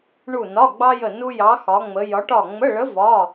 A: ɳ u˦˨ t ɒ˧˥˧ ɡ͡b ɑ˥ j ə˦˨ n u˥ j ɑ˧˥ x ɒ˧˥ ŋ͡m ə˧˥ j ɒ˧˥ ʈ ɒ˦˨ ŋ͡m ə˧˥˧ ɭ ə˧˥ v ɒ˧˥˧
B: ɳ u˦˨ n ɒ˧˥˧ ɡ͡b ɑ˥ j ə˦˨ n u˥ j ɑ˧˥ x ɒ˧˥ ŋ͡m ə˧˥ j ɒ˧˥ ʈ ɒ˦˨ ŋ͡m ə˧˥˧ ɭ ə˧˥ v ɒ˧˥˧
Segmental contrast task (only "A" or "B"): B